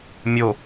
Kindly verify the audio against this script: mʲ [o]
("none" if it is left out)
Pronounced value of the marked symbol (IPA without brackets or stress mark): o